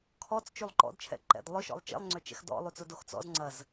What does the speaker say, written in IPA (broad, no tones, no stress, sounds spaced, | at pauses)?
kʰ ɔ t͡s t͡ʃ y lˠ ǃ ɔ̰ d t͡ʃʰ ɛ̰ ǃ ɛ̰ d lˠ ʊ ʃ ɔ̰ lˠ t͡ʃ ḛ lˠ ŋ͡ǀ ø t͡ʃ ɛ̰ x d ɔ̰ lˠ y t͡s ʊ d o x t͡s ɔ̰ z ŋ͡ǀ ɐ z